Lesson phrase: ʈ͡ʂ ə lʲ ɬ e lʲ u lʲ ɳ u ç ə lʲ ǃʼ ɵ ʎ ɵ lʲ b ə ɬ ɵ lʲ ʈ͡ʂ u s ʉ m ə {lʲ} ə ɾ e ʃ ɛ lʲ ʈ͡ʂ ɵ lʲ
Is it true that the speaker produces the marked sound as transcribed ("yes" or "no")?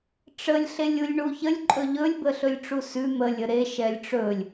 yes